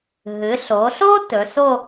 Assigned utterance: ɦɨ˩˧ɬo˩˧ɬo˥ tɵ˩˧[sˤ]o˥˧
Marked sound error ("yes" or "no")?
yes